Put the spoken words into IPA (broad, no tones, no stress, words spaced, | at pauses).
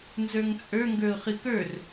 nzə˞ŋt͡sʼə˞ ŋɡə˞ʊ̯χɨkə˞r